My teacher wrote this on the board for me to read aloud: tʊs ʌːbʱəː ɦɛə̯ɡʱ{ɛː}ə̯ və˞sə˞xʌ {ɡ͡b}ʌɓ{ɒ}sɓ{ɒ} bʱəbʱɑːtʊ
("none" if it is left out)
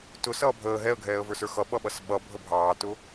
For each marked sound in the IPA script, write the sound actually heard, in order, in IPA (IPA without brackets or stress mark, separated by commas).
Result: ɛː, ɓ, ʌ, ʌ